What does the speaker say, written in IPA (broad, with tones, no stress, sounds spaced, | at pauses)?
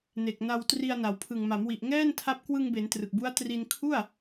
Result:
n e˨˩ k̚ n a˧ w t r i˧ a̯ n a˩˦ w pʰ ɯ˨˩ ŋ m a˩˦ m w i˨˩ ʔ ŋ ɛː˥˩ n tʰ a˦˥ p̚ k w ɯ˧ ŋ b e˩˦ n t r ɯ˨˩ k̚ b u˦˥ a̯ t r i˧ n kʰ u˥˩ a̯